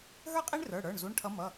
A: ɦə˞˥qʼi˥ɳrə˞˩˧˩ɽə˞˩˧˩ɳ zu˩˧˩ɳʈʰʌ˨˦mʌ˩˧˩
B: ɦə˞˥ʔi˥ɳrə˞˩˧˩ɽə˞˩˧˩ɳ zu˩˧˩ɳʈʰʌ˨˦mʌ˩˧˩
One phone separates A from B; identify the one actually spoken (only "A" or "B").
A